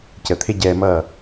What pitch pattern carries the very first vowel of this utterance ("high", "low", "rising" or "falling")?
low